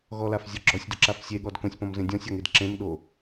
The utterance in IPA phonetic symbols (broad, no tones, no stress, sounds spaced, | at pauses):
ɣ ɔ l a f zʲ ɔ ɡ͡ǁ ɔ sʲ d ʊ ǁ a f sʲ e ɠ ɔ d k õ sʲ p ɔ̃ m z ẽ dʲ ɔ̃ sʲ ɔ ŋ e d ǁ ẽ m ɗ o